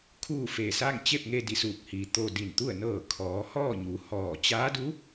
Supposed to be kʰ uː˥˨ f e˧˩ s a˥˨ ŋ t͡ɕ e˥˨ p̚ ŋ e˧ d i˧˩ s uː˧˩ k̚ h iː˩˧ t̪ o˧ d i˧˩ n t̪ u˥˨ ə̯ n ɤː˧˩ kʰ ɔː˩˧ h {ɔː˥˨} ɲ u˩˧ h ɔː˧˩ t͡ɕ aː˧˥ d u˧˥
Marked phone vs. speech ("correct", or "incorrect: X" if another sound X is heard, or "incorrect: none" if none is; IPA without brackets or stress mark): correct